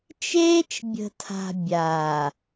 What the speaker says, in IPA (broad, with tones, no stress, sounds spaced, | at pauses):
t͡ʃ eː˦ t͡ʃ bʲ ə̤˨ tʰ a̤˨ bʲ aː˨